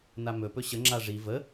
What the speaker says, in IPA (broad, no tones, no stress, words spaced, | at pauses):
namɵpɵ ɕə ŋ͡ǁaʐi və